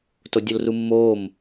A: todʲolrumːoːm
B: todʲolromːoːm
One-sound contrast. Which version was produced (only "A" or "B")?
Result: A